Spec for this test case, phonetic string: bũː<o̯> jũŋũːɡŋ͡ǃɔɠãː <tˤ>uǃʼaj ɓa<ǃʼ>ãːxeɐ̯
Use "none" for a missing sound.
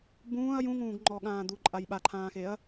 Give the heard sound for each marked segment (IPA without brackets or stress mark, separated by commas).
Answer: ɐ̯, d̪, ǃʰ